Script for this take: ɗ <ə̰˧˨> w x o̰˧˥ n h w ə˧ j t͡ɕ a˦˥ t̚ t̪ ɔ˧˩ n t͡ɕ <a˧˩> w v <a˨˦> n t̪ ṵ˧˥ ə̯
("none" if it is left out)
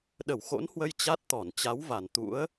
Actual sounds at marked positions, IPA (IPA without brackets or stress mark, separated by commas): ə˧˩, a˨˦, a˧˩